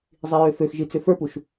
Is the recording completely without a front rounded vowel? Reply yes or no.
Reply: no